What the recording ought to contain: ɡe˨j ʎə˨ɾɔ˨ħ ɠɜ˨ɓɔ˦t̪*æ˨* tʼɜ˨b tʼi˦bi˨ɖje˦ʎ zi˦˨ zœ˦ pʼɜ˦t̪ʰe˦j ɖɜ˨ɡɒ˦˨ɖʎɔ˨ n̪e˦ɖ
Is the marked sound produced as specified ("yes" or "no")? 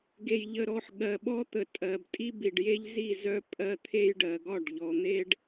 no